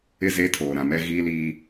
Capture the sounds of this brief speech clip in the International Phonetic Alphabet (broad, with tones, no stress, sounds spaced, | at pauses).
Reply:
ɪ˦˨ z eː˦ tʰ oː˨ ɾ ã˨ m ɛ˦ ɣ iː˦ l iː˦